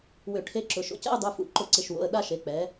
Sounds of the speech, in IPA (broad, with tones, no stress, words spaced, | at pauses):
wʏ˧˩˧ʈʰe˧˥ǁʊ˩˧˩ ʃo̰˩˧˩cɛ̰˥˧ʊ̯dˤu˩˧˩fṵ˩˧ ǃʊ˧˩˧ǀɪ˩˧˩ʃwo̰˩˧˩ə̯ ɗa˥˧ʃe˩˧˩ k͡pɛ˩˧